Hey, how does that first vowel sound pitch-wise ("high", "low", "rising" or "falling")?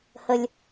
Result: low